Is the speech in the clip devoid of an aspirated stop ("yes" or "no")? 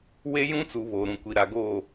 yes